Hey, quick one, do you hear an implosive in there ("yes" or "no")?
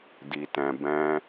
no